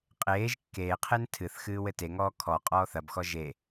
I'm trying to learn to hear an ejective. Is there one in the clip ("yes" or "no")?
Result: yes